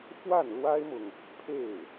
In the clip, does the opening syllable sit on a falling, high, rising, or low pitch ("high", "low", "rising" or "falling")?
falling